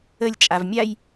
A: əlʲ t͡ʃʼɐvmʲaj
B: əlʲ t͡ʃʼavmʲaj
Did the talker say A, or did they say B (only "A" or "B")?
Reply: B